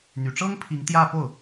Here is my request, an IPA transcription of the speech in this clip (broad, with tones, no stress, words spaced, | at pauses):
n̪y˨˩ʈ͡ʂɤ˥ŋpʰi˧˥ŋ t̪jä˥˧po˥˩ʊ̯